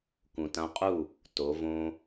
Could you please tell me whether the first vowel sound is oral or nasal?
nasal